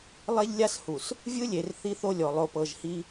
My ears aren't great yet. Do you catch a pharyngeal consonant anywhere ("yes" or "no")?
no